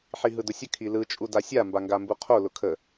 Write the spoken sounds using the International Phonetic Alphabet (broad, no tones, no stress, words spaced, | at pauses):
ħiɦɯdʊsʲə kʰilɯ t͡ʃʼudasʲa mbaŋɡambuqʰo lʊkʰə